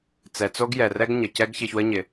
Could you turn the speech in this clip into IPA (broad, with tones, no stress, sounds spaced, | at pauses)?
t͡s ɛ˩ t͡s o˥ ɡ j ɛ˩ r ɛ˥ ɡ ɲ ə˩ c ɛ˥ ɡ ç ɪ˧ ç w ə˥ ɲ ɪ˩